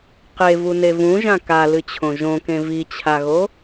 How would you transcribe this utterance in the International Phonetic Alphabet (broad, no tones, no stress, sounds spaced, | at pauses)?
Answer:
q e v u n e v ũ ʒ ã k a l ɨ t͡ɕʰ õ ʒ õ k ẽ v i t͡ɕʰ a ɣ o